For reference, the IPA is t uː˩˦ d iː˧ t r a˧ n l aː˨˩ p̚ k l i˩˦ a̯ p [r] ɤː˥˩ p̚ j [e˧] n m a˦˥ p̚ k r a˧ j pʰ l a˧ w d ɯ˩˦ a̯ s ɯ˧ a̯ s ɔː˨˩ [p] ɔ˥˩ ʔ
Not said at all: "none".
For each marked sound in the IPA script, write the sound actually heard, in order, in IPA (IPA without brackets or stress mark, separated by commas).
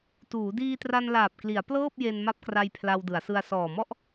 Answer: l, e˧, m